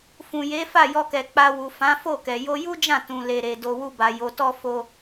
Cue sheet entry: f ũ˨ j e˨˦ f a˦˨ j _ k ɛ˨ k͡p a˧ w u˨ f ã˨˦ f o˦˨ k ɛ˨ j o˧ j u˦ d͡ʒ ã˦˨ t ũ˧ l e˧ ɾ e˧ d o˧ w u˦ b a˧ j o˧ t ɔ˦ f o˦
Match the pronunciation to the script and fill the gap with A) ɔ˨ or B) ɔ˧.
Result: B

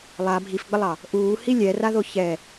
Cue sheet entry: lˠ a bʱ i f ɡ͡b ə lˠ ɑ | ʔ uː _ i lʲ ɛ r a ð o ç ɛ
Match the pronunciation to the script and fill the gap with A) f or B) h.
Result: B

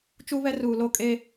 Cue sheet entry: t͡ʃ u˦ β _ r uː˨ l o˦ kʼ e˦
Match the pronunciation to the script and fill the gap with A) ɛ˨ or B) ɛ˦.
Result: B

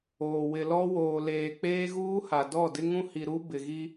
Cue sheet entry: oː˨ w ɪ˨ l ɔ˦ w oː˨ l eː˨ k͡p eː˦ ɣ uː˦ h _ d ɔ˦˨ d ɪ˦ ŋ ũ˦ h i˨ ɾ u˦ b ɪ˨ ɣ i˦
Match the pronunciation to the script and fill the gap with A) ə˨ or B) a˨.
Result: B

